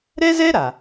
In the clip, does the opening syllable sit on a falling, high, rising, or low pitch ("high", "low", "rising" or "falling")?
high